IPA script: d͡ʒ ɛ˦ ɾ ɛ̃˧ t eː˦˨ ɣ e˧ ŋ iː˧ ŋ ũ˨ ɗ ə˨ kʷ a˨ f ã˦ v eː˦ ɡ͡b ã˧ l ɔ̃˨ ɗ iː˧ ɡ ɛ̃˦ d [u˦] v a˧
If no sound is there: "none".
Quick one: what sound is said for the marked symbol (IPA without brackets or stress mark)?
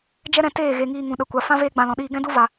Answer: u˦